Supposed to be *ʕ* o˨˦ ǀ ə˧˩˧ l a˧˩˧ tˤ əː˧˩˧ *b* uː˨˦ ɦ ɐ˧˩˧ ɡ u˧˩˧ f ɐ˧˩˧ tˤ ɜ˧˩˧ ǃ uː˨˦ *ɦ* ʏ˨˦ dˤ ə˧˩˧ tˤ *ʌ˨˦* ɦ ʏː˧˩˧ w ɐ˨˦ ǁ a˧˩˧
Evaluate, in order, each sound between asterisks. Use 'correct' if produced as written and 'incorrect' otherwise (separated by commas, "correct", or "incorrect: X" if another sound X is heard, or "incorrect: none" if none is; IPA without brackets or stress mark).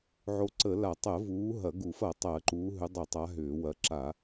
correct, incorrect: v, correct, incorrect: a˨˦